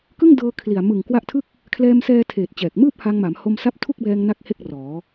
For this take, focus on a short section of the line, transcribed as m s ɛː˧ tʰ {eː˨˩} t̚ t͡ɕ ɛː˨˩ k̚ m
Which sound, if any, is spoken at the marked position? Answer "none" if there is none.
eː˨˩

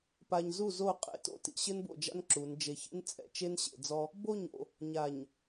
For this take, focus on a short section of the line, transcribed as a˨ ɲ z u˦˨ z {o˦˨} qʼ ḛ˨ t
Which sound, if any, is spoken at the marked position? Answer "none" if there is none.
o˦˨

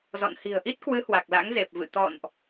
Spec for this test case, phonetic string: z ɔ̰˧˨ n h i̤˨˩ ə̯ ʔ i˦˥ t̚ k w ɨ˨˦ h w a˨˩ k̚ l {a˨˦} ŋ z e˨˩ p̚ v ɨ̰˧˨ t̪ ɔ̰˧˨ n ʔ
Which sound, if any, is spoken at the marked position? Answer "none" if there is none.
a̰˧˥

